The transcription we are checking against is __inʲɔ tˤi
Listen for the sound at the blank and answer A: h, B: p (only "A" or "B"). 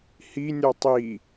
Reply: A